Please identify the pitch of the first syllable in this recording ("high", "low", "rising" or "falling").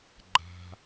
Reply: high